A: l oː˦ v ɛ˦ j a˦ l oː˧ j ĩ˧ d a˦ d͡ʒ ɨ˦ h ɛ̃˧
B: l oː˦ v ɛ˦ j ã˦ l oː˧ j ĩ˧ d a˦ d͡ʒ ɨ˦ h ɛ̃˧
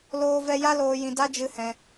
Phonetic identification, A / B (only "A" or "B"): A